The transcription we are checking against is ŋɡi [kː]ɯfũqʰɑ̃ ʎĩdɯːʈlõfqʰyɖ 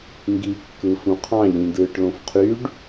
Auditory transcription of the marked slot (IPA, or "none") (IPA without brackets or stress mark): kː